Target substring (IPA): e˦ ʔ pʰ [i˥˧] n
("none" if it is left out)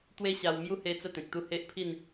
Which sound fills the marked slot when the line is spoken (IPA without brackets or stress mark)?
i˥˧